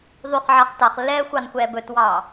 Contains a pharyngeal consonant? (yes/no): yes